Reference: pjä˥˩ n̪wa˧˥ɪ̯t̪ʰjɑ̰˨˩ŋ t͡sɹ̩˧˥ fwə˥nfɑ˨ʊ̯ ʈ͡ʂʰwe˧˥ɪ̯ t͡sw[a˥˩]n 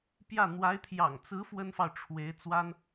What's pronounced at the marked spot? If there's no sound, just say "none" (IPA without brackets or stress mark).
a˥